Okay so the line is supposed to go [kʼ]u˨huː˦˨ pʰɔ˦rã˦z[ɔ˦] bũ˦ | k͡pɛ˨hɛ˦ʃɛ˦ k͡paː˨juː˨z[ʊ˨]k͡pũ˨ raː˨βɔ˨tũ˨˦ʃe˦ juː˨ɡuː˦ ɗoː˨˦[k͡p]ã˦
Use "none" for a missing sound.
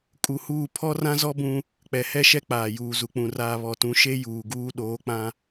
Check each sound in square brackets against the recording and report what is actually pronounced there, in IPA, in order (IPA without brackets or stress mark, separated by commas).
kʼ, ɔ˦, u˨, k͡p